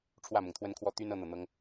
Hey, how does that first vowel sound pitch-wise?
falling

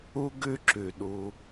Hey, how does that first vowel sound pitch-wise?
high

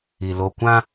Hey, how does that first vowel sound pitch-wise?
low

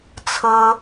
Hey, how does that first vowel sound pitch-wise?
high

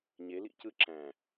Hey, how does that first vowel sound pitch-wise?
rising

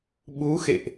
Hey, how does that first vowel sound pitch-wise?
rising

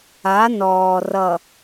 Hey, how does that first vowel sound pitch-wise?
rising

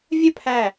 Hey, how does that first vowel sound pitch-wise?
falling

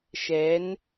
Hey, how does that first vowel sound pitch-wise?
rising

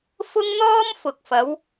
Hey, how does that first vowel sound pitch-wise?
high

